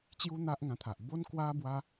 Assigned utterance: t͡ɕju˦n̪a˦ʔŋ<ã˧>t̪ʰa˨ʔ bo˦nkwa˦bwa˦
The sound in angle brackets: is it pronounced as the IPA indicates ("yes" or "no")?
yes